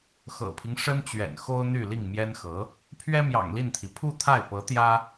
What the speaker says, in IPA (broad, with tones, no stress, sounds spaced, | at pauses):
x ɤ̰˨˩ pʰ i˦ ŋ ʂ ə˥ n t͡ɕ ɥ ɛ̰˨˩ n x o˥ ʊ̯ n̪ y˥˧ l i˥˩ ŋ m j ɛ˥ n x ɤ˧˥ | pʰ ɥ ɛ˥ m j ɑ̰˨˩ ŋ l i˥˩ n t̪ʰ i˩ pʰ u˥˧ t̪ʰ a˥˩ ɪ̯ p ɤ˧˥ t̪ j ä˥